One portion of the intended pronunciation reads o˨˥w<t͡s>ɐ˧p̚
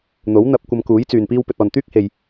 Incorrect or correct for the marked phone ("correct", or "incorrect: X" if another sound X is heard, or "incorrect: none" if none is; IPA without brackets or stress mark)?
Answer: incorrect: n̪